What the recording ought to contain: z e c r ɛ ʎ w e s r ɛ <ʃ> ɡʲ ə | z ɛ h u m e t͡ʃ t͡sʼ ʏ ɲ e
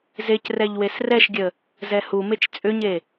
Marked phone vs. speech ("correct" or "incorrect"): correct